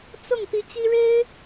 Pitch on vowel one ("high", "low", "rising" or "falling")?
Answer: falling